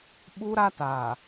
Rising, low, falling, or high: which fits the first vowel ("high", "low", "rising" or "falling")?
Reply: high